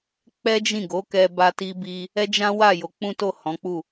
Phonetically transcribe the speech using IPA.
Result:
k͡pɛ˦d͡ʒĩ˦˨ɡo˨˦kɛ˧ ba˦ti˦bi˦ | ɛ˦d͡ʒã˦wa˦˨ jo˨˦k͡pũ˦to˦˨ hɔ̃˨˦k͡pu˦˨

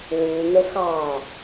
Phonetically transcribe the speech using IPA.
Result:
wu n̪əxɑ

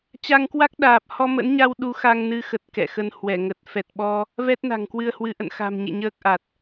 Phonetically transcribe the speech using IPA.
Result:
t͡ɕa˧ŋkwa˦˥k̚ɗaː˨˩p̚ hɔ˧mə̰˧˥nɲa˧w ɗu˨˦ xa˧ŋnɨ˧xə˨˩t̚ kɛ̰˧˨xə˧nhwɛ˧˩ŋə˨˩t̚ fɛ˨˩t̚ɓɔ˧ | vɛ˦˥t̚na̤˨˩ŋkwɨ˧ə̯hwɨ˨˦ ʔə̰˧˨nxa̤˨˩mɲḛ˧˨ ɲəː˦˥k̚ʔa˨˩t̚

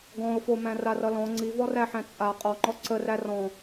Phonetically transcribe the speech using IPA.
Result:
ɡɔ̃ʊ̯fomæ̃ rarʌlɔ̃ ŋ͡ǀivɔræħæ̃ t͡sʼa qʼɔŋ͡ǃɔ ǀəræ rɔ̃

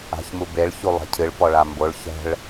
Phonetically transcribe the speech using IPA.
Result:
a̤çmubeɭ çulˠɛ̤cʰɨɭ pɔɭamboɭ çɛ̤ɭ

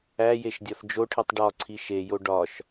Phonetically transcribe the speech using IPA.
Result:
æjeʃdʲɒθ d͡ʒoʈʰitˤ ɖɒǀʰi ʃejo ɖɒʃ

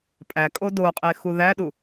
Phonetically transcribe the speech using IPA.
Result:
pʼækʼo doqʼexu ðæɗu

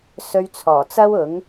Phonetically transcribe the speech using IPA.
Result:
sɵ˧ɥt͡sʰɔː˨˩t͡sɐ˥w ʊ˨˥ŋ

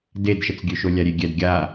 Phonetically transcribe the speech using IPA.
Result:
dedʃət͡sɡʲøʃo lʲaɾʲeɡʲɛd ɡʲa

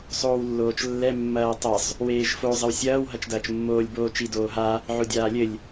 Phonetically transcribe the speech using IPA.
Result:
sˤoːwlːoːt͡ʃlːɛ mːɐːtˤɐsˤ | weːʒfo zˤɘwsʲɐːw ɦɐt͡ʃdɐːt͡ʃmːoːlʲ boːt͡ʃi doːɦa | ʕodʲaːlʲɘlʲ

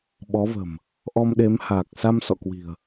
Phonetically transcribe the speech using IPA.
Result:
ɓɔ˨˦və̤˨˩m | ʔɔ˧mɗe˨˦m haː˨˩k̚ sa˧msɔ̰˧˨kwi̤˨˩ə̯

